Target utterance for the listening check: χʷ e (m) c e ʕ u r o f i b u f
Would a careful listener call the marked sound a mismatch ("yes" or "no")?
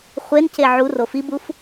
yes